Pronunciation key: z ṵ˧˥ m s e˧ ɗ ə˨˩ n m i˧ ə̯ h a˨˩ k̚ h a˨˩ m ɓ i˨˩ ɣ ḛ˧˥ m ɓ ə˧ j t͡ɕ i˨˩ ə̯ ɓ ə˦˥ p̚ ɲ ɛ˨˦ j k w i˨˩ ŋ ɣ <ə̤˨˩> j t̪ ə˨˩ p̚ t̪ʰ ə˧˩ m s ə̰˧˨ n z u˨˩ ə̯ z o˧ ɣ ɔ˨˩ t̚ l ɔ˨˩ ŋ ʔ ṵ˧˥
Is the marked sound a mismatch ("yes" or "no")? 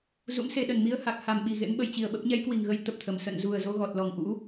yes